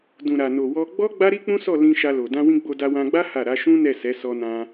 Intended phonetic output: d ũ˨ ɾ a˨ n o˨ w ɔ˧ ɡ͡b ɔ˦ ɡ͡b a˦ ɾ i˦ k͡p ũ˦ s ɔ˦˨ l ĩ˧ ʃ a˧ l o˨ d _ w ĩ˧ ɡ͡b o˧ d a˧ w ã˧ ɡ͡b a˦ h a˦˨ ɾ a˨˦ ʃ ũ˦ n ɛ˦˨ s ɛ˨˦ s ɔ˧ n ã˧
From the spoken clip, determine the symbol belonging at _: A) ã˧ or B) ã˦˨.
A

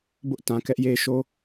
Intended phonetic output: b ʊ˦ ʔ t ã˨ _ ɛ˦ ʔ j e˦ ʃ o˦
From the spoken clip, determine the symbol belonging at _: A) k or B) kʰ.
A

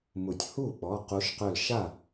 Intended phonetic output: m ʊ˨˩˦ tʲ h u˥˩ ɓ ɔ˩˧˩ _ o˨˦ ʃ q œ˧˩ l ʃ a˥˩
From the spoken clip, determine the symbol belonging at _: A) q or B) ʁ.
A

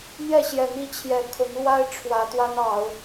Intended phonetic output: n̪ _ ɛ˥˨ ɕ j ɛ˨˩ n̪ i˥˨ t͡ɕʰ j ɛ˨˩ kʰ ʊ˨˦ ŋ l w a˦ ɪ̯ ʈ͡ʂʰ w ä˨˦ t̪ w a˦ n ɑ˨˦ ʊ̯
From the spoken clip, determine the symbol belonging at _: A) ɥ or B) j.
B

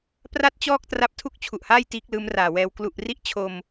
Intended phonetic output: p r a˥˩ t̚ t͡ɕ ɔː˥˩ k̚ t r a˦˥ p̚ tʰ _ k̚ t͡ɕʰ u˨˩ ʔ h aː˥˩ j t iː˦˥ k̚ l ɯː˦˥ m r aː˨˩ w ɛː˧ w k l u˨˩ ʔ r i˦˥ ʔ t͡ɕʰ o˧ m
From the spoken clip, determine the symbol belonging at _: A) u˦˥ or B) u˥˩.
B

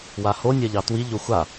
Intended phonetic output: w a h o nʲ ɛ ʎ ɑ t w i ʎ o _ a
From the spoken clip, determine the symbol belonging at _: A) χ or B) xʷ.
B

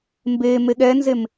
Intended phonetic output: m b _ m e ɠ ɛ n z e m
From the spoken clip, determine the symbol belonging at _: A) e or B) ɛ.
A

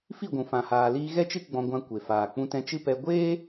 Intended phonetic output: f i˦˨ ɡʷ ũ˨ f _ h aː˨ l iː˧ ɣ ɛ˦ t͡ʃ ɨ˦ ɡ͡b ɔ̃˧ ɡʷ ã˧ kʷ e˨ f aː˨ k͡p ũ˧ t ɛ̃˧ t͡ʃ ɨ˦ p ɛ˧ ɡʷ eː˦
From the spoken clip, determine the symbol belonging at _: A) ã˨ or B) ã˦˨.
A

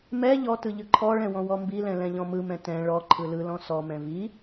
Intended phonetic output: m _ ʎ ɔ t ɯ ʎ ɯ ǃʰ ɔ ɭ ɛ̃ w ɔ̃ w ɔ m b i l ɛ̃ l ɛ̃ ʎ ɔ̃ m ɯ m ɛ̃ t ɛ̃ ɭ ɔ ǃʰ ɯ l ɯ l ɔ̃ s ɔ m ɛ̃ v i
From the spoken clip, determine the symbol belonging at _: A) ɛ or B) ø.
A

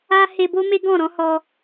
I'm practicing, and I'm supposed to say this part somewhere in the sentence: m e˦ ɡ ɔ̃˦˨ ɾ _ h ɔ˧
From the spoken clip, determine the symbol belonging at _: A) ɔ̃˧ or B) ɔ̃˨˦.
B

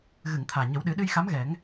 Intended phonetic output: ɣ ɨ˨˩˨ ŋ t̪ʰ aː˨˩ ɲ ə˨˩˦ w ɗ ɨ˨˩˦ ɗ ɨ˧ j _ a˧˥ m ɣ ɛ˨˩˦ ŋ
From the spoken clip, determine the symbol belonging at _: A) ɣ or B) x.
B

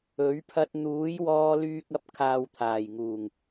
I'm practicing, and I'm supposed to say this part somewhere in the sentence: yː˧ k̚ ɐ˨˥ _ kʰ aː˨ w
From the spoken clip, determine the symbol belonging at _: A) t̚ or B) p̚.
B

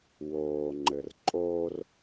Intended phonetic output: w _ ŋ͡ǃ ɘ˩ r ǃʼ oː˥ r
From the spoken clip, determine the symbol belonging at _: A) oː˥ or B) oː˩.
B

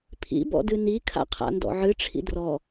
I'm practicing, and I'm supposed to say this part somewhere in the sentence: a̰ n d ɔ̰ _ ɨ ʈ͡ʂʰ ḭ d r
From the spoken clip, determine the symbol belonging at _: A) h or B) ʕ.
B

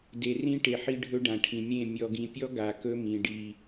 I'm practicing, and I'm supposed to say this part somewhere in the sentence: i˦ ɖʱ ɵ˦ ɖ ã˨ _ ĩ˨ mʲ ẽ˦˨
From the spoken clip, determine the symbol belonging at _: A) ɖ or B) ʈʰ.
B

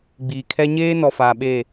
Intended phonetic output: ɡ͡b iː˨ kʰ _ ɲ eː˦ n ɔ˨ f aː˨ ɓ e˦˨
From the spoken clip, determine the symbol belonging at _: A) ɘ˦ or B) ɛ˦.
B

